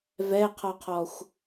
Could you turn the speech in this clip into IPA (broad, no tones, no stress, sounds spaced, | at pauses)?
v ɛ qʰ ɔ qʰ ɔ xʷ